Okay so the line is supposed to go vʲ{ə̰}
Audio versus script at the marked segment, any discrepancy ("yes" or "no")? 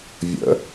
no